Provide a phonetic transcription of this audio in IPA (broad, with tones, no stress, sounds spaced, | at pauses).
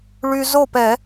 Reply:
ɭ y˧ z o˥˨ p ɛ˧˩˧